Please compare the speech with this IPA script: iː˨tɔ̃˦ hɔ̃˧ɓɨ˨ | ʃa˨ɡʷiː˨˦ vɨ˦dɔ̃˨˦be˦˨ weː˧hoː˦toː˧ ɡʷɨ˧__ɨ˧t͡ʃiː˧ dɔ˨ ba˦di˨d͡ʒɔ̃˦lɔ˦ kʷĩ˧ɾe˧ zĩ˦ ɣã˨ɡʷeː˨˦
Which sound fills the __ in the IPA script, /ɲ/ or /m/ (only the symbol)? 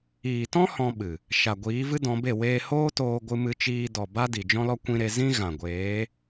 m